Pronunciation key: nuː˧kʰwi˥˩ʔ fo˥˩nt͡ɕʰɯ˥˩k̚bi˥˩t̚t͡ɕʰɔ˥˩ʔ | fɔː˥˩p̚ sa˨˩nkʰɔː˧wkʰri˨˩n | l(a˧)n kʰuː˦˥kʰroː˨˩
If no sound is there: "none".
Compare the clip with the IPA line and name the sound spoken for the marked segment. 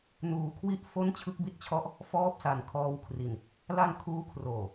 a˧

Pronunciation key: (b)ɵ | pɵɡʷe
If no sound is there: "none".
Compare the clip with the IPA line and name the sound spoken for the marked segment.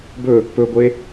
b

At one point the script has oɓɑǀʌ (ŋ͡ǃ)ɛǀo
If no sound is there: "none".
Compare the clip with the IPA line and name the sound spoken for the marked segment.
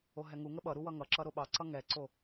ŋ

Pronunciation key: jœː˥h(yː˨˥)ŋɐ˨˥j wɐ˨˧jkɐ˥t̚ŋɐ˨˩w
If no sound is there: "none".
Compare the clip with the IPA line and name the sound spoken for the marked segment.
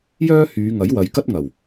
yː˨˧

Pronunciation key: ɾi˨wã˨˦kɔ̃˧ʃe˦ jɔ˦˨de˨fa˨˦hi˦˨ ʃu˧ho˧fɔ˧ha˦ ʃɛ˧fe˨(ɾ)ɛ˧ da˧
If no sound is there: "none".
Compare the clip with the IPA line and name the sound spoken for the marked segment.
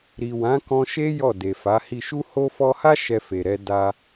ɾ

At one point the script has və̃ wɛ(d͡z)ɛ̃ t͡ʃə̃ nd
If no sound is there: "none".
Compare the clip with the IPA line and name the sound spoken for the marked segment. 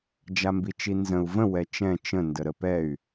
t͡ʃ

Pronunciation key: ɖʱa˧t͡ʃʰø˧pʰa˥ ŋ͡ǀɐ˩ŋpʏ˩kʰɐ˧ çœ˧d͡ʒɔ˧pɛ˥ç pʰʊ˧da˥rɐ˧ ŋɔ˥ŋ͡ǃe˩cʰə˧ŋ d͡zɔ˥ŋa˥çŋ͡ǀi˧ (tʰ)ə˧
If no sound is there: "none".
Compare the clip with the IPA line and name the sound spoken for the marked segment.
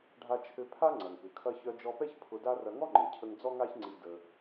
d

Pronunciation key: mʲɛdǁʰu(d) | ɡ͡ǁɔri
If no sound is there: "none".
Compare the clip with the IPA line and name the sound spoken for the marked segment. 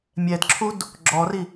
d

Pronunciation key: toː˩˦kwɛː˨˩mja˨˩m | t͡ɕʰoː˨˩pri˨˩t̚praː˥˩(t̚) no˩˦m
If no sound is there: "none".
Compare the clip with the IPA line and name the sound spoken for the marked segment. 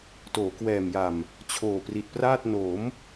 t̚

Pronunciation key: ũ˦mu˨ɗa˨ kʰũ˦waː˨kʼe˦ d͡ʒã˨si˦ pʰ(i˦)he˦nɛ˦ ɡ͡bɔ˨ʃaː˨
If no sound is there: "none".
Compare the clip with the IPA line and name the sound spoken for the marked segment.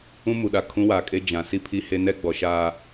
i˦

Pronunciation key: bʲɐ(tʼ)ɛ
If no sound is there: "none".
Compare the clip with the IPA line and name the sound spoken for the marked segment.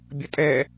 tʼ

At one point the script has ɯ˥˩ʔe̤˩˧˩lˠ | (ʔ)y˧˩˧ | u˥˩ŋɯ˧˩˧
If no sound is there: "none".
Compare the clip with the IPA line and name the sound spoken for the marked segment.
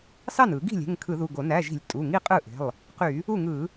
q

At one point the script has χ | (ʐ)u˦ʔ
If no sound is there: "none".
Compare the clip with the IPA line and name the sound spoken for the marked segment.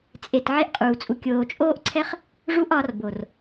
ʐ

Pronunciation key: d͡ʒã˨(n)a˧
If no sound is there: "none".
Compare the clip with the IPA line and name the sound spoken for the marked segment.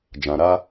ɾ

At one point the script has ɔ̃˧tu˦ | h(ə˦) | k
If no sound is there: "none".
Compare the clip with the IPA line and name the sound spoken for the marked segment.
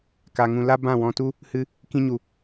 ɨ˦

